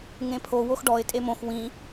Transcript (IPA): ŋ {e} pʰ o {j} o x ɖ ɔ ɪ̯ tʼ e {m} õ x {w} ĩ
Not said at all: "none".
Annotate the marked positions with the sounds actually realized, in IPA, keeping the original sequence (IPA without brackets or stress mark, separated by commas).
ẽ, w, m, w